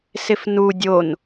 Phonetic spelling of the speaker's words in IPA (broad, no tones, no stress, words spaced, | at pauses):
sɪfnu dʲon